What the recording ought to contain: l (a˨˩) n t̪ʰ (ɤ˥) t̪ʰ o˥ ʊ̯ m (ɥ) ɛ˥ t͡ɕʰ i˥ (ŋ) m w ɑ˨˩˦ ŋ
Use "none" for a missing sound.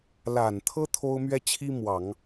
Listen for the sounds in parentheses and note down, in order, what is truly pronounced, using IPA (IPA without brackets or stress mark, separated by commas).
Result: a˨˩, ɤ˥, ɥ, none